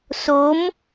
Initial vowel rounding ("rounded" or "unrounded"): rounded